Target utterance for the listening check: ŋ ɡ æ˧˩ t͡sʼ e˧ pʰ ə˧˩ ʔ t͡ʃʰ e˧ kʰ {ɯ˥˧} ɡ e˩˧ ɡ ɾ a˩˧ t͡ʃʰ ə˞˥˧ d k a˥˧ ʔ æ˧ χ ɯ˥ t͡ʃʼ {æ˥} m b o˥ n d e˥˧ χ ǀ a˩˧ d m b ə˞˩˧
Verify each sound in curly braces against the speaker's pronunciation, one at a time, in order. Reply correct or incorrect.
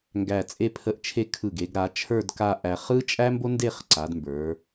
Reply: incorrect, correct

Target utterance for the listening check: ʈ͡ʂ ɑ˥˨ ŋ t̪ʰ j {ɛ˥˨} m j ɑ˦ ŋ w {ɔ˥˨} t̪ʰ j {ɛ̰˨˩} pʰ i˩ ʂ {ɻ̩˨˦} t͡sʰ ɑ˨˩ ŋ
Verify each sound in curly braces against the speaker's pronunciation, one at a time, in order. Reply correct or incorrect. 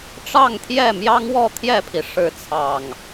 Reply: correct, correct, incorrect, correct

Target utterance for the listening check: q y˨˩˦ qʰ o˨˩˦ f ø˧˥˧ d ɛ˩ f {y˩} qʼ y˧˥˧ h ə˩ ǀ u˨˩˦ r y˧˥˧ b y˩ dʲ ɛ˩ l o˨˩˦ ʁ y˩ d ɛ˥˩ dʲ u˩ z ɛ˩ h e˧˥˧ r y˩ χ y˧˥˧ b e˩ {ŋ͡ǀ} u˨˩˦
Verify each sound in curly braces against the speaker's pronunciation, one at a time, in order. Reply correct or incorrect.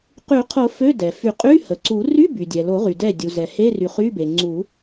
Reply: incorrect, correct

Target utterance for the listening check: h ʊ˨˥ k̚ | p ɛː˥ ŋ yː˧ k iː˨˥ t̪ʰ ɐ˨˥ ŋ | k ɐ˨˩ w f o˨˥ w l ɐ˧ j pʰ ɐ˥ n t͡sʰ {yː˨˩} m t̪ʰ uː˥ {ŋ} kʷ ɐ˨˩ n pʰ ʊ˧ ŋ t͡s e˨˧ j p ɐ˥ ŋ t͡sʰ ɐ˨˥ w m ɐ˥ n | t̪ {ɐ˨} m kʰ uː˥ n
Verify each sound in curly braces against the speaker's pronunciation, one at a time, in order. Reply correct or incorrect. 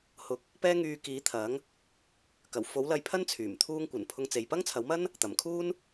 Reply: correct, correct, incorrect

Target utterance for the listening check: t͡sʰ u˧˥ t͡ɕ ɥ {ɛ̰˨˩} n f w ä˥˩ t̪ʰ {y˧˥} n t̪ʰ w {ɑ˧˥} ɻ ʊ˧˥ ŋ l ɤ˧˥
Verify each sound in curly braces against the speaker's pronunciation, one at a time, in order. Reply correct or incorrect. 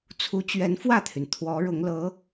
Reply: incorrect, incorrect, incorrect

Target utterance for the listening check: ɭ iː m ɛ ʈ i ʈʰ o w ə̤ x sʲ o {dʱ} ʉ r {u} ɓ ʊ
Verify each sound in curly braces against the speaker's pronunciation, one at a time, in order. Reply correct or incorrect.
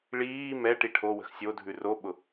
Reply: correct, incorrect

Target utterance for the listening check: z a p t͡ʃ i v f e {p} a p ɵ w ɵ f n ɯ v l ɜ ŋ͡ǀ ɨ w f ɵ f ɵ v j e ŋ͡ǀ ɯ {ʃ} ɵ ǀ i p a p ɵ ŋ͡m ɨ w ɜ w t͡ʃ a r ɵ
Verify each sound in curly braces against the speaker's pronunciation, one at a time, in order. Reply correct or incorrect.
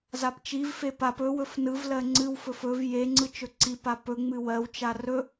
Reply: correct, incorrect

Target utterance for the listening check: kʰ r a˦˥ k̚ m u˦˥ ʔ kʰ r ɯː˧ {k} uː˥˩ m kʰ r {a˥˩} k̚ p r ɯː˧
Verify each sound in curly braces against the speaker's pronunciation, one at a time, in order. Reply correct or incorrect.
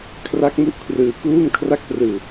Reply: correct, correct

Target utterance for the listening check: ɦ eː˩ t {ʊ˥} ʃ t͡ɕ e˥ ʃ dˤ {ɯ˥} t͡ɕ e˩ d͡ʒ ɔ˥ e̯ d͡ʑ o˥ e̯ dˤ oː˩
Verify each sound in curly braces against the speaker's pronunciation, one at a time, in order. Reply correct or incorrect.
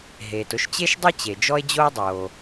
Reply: correct, correct

